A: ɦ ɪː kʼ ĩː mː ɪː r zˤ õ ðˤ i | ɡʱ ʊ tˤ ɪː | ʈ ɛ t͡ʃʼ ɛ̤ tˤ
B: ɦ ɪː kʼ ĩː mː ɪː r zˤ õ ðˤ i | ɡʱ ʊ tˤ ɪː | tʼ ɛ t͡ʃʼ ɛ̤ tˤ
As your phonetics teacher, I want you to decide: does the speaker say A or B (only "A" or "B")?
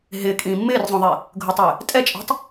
B